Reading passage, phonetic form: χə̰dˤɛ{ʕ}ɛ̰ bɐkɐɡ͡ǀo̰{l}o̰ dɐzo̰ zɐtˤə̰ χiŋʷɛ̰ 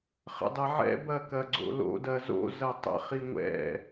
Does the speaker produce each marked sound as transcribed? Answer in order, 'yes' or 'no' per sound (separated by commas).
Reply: yes, yes